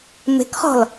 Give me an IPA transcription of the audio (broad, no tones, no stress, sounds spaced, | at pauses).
m e̤ k χ ɔ̤ l